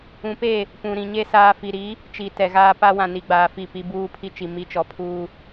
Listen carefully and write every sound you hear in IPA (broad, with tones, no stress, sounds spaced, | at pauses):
ũ˨ p e˦˨ | p ũ˨ ɾ ĩ˨ ɲ e˦ s aː˦ f i˨ ɾ i˨˦ | t͡ʃ i˨ t ɛ˨ ɣ aː˦ p a˦ w ã˨ n i˨ ɡ͡b aː˨ f i˦˨ p i˦ b uː˦ pʰ i˦ t͡ʃ i˨ m i˦ t͡ʃ ɔ˨ pʰ uː˦